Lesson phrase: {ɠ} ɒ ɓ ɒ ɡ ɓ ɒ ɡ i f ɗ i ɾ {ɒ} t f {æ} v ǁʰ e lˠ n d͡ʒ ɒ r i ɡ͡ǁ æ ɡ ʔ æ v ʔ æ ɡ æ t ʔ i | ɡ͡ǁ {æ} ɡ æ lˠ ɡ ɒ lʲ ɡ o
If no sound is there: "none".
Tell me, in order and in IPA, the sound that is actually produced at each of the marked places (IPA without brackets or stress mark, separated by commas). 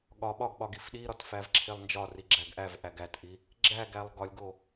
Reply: ɠ, ɒ, æ, æ